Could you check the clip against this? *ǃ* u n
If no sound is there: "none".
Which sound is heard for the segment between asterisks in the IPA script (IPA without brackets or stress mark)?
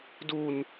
d